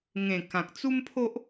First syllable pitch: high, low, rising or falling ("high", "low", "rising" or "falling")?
low